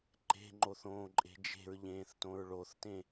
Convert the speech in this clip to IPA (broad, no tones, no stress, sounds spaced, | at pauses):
ǃ e̤ ŋ͡ǃ o θ õː ǃʼ e̤ d͡ʒ e̤ ɹ ʎ ẽː θ t õ ɹ ɭ o θ t ẽ